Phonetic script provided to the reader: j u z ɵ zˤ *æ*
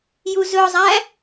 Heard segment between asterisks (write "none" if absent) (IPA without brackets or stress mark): æ